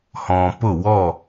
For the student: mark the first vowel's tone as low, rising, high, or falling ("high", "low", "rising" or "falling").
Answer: low